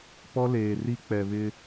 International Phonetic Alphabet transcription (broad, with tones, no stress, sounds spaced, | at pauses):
p ɔ˦ l eː˨ r i˦ k͡p ɛ˨ β ɪ˦